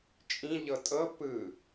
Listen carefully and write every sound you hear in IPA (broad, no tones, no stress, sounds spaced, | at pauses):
t͡ʃʼ ĩ ʎ ɤ tʼ ɤ p ɯ